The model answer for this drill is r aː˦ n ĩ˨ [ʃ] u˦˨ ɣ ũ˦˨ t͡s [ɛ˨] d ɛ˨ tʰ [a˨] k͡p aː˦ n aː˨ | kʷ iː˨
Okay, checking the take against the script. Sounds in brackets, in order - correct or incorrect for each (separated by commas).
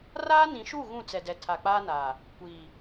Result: correct, correct, correct